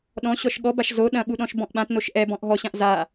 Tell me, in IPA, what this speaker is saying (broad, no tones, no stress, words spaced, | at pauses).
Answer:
ɗɔ̃ ɕɔʃɠɔbaʃ zo ɗɐ̃ɓuɗɔ̃ʃ bɔ̃ʔɓãtnoʃ ʔɛbɔ̃ʔ ɦɔɕãʔ za